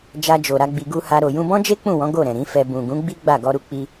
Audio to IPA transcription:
d͡ʒ a˧ d͡ʒ o˨ ɾ a˧ ɡ͡b i˧ ɡ u˦ h a˦ ɾ o˧ j ũ˧ b ɔ̃˦ d͡ʒ e˦ k͡p ũ˦˨ w ɔ̃˨˦ ɡ o˦˨ ɾ ɛ̃˨ ɾ ĩ˨˦ f ɛ˧ b ũ˨ ɡ ũ˨˦ ɡ͡b i˦ ɡ͡b a˦˨ ɡ ɔ˧ ɾ u˧ k͡p i˧

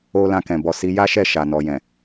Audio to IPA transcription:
o˦ l ã˧ k ɛ̃˨ b ɔ˨ s i˨˦ j a˦ ʃ ɛ˦˨ ʃ a˨ n ɔ˨ j ɛ̃˨

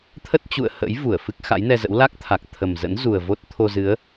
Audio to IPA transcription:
t̪ʰ ə˦˥ t̚ t͡ɕ ṵ˧˨ ə̯ h ə̰˧˥ j v u˧˩ ə̯ f ɨ˦˥ k̚ x a̰˧˥ j n ɛ˧ z ə̰˧˥ w l a˦˥ k̚ t̪ʰ a˨˩ k̚ t̪ʰ ə˨˩ m z ə̰˧˥ n z u˨˩ ə̯ v o˦˥ t̚ t̪ʰ o˧ z ɨ˨˦ ə̯

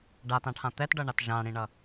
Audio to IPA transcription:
ɖ a t ã ʈʰ ã t̪ ɛ t ɖ ʌ ɳ a t ʒ ã ɽ ĩ ɳ ʌ

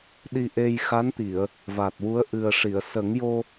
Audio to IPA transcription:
ɗ i˧ ʔ e˧ j x a˧˥ n t̪ i˨˩˨ ə̯ | v a˨˩ t̚ w u˧˥ ə̯ ʔ ɨ˨˩ ə̯ ʂ i˨˩˨ ə̯ s ə˨˩˦ ŋ j o˧

